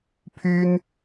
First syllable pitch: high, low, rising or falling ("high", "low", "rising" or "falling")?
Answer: high